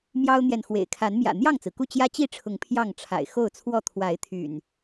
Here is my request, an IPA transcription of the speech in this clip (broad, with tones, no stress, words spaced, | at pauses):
mjɑ˦ʊ̯n̪jɛ˨nxwḛ˨˩ɪ̯ kʰa˨˦nmjä̰˨˩ n̪jɑ˥˨ŋt͡sɹ̩˩ku˥˨ t͡ɕjä˦t͡ɕi˥˨ʈ͡ʂʰʊ˨˦ŋ pʰjɑ˥˨ŋʈ͡ʂʰa̰˨˩ɪ̯ xo˥˨ʊ̯t͡sʰwɔ˥˨ t̪ʰwa˨˦ɪ̯t̪ʰy̰˨˩n